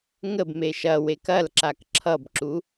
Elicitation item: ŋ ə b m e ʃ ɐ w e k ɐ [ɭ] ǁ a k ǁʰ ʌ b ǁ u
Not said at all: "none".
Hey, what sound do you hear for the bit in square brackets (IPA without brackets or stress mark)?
l